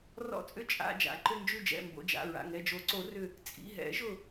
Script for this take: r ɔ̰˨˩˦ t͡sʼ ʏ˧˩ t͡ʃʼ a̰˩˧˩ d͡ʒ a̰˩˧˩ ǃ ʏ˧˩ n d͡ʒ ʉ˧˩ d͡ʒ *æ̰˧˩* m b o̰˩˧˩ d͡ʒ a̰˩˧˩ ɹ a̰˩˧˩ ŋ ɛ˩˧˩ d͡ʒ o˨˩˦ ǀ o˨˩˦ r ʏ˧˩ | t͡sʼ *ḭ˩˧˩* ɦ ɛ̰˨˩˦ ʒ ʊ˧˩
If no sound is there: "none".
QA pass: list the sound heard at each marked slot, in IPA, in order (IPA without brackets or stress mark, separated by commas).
ɛ̰˧˩, ḭ˩˧˩